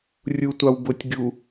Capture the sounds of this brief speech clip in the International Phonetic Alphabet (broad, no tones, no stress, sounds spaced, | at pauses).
rʲ u tʷ ɑ w b ʊ tʲ ɡʲ u